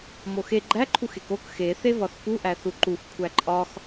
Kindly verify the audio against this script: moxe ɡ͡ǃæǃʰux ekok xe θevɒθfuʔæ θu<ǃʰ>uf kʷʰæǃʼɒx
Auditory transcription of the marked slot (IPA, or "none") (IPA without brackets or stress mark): ǃ